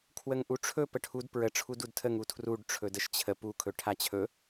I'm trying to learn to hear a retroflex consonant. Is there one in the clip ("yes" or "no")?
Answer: yes